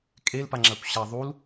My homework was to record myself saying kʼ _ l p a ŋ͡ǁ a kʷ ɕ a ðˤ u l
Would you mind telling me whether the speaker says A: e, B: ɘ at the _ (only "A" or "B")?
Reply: A